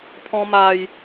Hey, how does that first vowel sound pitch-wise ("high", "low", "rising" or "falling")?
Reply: high